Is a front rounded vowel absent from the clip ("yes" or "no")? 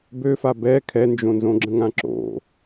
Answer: no